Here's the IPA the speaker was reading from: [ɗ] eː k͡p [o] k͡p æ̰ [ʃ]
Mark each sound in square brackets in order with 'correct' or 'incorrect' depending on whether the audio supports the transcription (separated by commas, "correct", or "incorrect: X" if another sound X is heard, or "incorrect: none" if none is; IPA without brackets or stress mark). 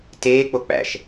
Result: incorrect: t, correct, correct